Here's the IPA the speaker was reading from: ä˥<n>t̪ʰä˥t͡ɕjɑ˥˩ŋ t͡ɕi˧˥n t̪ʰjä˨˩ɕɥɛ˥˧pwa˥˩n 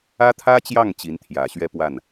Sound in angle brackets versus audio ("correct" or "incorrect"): incorrect